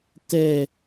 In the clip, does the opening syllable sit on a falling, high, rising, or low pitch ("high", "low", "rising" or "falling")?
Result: falling